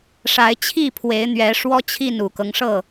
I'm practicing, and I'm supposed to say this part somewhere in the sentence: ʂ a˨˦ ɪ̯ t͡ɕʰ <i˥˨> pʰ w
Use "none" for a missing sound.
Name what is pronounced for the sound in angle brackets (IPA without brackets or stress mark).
i˥˨